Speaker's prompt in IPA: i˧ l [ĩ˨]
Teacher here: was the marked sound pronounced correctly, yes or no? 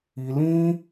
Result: no